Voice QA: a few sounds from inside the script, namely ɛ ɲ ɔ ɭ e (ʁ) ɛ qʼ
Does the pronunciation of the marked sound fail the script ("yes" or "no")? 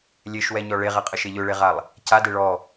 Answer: no